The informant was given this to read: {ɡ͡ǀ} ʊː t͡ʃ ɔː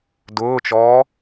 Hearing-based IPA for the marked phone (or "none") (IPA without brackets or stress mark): d